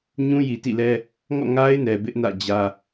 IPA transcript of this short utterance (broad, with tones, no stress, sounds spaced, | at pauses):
ɲ ũ˦ j i˨ t ḭ˦˨ l ɛ˦ | ŋ ɔ̰˦˨ ŋ a˦ ɪ̯ n ɛ˨ b ɪ˦ ʔ n ä̰˦˨ d͡ʑ ä˦